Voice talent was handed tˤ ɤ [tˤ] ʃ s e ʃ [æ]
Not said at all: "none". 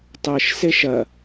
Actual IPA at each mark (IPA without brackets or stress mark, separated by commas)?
none, ɐ